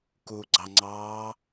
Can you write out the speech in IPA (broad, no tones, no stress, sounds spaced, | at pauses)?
k u ɡ͡ǀ ɑ ŋ͡ǀ ɑː